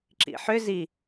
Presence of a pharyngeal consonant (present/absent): present